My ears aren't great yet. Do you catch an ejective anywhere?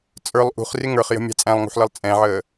yes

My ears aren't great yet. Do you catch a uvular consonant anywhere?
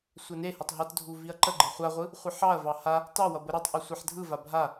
yes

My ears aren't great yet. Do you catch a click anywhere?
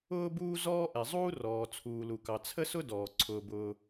yes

